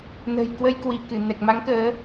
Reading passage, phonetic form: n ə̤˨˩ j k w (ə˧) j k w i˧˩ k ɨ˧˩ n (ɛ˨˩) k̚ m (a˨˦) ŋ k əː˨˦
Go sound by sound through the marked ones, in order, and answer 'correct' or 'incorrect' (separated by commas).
correct, correct, correct